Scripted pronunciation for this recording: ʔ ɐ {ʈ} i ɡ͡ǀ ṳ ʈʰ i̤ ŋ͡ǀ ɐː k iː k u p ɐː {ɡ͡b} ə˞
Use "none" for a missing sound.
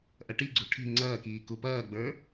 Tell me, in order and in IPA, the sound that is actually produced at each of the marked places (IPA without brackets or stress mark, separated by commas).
ʈ, ɡ͡b